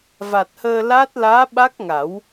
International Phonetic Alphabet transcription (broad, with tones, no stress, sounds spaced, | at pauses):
v a˨˩ t̚ h əː˧ l a˦˥ t̚ l aː˧˥ ɓ a˦˥ k̚ ŋ a˨˩˦ w